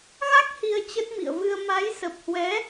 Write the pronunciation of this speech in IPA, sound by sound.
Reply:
ɣa˦˥k̚ hi˧ə̯t͡ɕə˦˥t̚mḭ˧˨ə̯vɨ˧ə̯ ma˨˦j sə˨˩p̚hwɛ˨˦

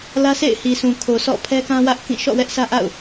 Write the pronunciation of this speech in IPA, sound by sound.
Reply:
lä˦sʰḛ˦˨ɪ̯hi˨sũ˨ kʰo˨sɔ̰˦˨ pʰɛ˦kã˦wä˦ʔkĩ˦˨ ʃɔ̰˦˨wɛ˦ʔsʰä˦ ʔa̰˦˨ʊ̯

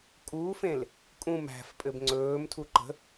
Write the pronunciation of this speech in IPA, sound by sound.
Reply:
kʼuːfẽl | kʼũm æ̤fpʼɘb ŋ͡ǀɵːmtʰu ǃə̤

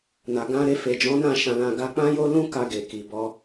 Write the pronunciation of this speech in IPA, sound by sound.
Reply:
na˨ɡã˧ ɾe˧fe˨ d͡ʒɔ̃˨˦ nã˦˨ ʃã˧lã˧ ɡa˧k͡pã˦jo˦ lũ˦ ka˧ɡe˨ ki˨bɔ˧

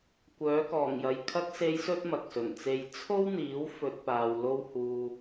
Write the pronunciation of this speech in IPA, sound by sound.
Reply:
kʷœː˨˥kɔː˨˩ŋjɐ˨j kʰɐ˧k̚se˨˧jsɵ˧t̚ mɐ˨k̚sɵ˨˩nt͡se˧j t͡sʰo˥wn̪iː˨˥w fɵ˨t̚ paː˨wlo˥whuː˧

